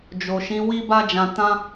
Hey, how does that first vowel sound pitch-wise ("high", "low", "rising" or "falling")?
low